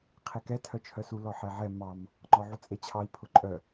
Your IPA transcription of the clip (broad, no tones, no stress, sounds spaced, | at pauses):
qʰ e k ɛ tʰ œ t͡ʃʰ œ s u l ɔ ħ ɛ ʕ ɛ m ɑ m | ŋ͡ǃ ɔ ʕ u t͡sʼ e t͡ɕʰ ɑ i̯ pʰ ʊ ǃʼ œ